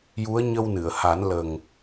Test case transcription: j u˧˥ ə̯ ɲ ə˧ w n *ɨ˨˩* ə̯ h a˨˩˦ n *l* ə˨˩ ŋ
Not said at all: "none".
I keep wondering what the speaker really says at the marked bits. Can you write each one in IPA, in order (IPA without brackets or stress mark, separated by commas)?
ɨ˨˩˨, l